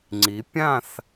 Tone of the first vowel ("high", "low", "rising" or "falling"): rising